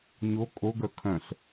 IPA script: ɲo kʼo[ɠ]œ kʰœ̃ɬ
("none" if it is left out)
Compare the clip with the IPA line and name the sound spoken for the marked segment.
ɡ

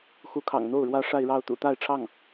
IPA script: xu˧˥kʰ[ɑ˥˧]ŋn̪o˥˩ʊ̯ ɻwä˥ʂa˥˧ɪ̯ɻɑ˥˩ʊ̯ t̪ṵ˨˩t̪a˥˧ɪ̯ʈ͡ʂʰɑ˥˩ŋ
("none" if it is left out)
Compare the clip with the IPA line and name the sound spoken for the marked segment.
ɑ̰˨˩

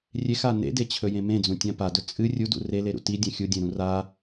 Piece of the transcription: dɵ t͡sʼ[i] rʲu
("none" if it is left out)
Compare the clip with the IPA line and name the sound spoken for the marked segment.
ɨ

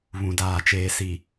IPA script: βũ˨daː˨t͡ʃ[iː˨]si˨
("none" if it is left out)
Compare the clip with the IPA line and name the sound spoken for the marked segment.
eː˨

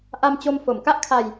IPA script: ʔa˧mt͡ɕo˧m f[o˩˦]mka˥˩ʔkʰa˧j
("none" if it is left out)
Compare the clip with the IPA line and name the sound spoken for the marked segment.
o˩˦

